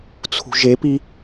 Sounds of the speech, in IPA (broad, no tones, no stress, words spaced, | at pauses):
t͡sʰṳʒepi